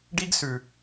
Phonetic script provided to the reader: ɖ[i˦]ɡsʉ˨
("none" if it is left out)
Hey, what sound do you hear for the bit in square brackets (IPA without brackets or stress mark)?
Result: i˦